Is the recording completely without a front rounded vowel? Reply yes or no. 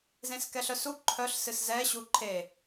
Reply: no